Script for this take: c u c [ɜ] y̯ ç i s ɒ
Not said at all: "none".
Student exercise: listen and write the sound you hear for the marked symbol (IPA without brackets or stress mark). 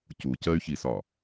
ɜ